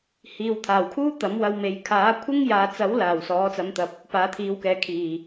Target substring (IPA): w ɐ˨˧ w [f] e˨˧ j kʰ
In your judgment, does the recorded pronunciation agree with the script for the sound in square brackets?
no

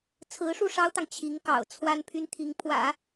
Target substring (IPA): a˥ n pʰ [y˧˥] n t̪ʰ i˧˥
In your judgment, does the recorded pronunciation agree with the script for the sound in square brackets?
no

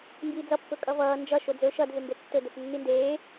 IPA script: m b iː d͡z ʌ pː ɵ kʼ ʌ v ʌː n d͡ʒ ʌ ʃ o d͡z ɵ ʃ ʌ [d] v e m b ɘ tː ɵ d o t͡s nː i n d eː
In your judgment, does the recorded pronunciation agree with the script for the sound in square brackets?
yes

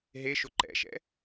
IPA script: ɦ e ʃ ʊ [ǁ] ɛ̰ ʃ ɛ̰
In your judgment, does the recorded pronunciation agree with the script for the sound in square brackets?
no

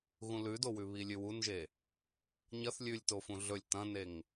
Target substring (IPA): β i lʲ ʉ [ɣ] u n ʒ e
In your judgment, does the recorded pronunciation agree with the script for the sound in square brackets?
no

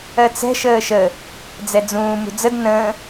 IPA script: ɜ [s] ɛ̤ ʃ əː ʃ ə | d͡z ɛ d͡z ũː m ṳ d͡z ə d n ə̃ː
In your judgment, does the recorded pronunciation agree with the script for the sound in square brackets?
no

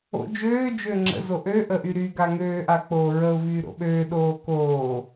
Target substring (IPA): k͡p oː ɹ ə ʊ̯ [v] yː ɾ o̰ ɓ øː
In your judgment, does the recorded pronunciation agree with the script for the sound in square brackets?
yes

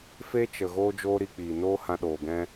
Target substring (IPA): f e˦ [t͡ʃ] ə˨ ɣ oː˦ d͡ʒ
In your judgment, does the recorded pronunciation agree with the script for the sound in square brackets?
yes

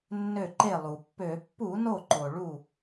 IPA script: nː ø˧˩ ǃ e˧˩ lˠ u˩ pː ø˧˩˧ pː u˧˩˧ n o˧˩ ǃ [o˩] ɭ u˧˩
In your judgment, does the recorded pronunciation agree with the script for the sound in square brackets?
yes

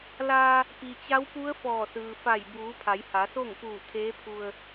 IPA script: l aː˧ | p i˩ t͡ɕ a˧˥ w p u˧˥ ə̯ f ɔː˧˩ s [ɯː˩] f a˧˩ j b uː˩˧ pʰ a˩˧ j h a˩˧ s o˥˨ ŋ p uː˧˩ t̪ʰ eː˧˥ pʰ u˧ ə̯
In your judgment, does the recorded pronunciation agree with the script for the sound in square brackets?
yes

